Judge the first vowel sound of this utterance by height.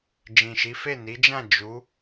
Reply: high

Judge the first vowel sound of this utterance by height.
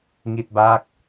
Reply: high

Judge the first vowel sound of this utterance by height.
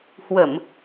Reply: mid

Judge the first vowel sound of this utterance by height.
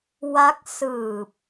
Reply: low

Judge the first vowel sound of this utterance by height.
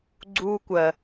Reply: high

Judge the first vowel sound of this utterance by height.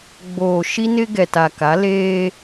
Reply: mid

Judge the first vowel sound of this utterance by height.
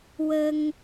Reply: mid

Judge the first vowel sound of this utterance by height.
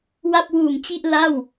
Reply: low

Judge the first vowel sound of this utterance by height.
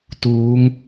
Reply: high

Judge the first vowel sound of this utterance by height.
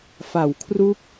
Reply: low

